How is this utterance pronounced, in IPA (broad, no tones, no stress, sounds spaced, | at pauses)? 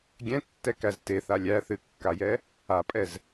ɡʲ ɛ̃ tː ɛ k æ z t e θ a lʲ æ θ ɨ kː a j ɛ | a pʼ ɛ z